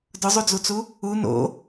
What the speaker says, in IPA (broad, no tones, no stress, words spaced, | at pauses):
dʊzˤud͡zut͡su | u no̰